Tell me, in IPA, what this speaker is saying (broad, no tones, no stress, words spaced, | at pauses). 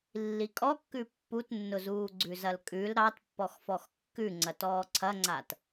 lːikʼɔkːʉ pːutnːʊzuː ɡ͡ǀʉzɐlkʼʉl ɾɑt pːɔxfɔxkːʉ ŋ͡ǀɐtɔːǀʰɐŋ͡ǀat